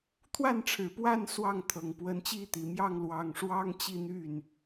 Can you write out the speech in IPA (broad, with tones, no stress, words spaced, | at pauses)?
t̪ʰwa˥˩nʈ͡ʂʰɻ̩˨˩pwa˥˧n swɑ˥˩ŋ t̪ʰɤ˨˩ŋ pwə˧˥nt͡ɕi˥˩t̪i˨˩ mjɑ˥˩ŋlwɑ˨˩ŋʂwɑ˥ŋ t͡ɕi˥˧n̪y˥˩n